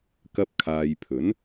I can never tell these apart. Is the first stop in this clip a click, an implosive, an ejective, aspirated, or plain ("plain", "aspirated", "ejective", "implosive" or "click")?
plain